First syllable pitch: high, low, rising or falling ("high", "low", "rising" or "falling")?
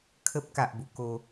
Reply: high